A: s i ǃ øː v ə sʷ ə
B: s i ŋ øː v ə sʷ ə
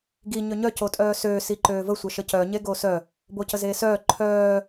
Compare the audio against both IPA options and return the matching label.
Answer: A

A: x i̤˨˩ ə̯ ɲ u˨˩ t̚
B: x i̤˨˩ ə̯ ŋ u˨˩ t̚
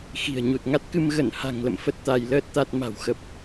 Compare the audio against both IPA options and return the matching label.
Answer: A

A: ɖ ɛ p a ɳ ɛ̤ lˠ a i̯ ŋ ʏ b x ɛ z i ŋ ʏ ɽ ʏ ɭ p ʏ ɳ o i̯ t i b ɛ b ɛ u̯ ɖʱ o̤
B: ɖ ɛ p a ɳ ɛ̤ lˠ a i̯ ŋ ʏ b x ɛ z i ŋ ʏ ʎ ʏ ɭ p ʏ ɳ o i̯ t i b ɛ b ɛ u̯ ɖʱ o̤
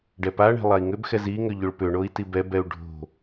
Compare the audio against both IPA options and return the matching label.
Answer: B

